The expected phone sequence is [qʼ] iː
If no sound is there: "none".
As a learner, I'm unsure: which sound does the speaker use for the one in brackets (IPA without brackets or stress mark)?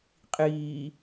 qʼ